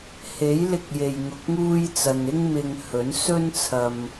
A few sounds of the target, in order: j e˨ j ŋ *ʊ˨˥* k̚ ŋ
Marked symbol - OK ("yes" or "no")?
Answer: no